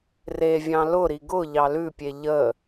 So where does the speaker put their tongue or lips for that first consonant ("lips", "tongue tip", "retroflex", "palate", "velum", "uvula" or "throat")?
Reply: tongue tip